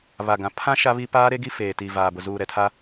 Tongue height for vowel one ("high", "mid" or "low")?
low